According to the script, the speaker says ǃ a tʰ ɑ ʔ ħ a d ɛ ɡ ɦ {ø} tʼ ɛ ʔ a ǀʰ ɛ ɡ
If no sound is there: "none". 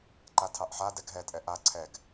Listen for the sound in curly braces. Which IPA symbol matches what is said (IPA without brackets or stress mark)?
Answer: ɛ